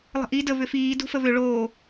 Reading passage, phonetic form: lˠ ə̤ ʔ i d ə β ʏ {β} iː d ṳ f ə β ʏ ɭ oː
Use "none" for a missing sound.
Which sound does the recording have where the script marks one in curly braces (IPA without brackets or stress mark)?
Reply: f